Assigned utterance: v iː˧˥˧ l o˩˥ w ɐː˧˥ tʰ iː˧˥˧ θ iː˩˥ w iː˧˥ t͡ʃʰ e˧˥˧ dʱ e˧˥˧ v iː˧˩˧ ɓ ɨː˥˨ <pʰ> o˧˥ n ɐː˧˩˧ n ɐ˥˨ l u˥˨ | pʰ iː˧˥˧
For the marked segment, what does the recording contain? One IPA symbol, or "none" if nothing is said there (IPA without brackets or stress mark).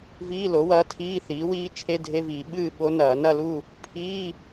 ɓ